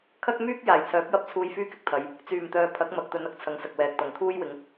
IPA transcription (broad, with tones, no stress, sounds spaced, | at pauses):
kʰ ɐ˥ k̚ m yː˥ k̚ j aː˨˩ j t͡sʰ œː˨˥ p̚ j ɐ˥ p̚ t͡sʰ uː˧ j f yː˥ k ɪ˥ k̚ t̪ʰ ɐ˨˧ j | t͡s yː˨˩ m t̪ œː˨ pʰ ɐ˨˥ k̚ m ɐ˨ k̚ t̪ ɵ˨˧ n ɐ˥ k̚ t͡sʰ ɐ˨˧ ŋ s ɐ˨ k̚ w ɛː˨ k̚ t̪ ɐ˨˩ ŋ t̪ʰ uː˥ j w ɪ˨˥ ŋ